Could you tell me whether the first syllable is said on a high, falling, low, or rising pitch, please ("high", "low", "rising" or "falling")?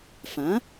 rising